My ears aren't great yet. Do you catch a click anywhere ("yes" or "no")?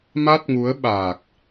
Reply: no